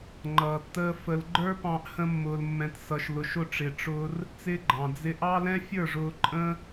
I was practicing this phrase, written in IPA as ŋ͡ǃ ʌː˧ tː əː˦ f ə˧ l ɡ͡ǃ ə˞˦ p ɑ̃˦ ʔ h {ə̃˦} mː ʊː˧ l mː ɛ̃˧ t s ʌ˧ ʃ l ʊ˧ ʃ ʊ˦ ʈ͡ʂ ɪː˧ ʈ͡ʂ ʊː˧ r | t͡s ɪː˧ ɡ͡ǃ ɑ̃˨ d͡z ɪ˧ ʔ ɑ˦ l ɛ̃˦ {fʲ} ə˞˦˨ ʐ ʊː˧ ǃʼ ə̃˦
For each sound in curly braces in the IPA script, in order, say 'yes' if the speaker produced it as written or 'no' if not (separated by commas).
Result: yes, yes